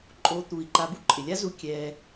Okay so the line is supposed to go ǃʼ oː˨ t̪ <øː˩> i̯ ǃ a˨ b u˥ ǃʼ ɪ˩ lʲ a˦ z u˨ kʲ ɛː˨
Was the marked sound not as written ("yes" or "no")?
yes